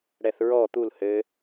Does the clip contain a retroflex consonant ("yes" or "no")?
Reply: yes